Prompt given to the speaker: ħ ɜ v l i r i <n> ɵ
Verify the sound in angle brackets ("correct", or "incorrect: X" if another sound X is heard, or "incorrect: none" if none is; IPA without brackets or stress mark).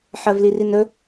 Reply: correct